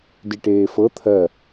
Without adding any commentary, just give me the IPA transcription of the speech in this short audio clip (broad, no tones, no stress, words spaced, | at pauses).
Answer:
diʈeːfɤ t̪ʰɜ